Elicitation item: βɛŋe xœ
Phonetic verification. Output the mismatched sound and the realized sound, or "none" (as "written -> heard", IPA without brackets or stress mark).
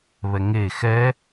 œ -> ɛ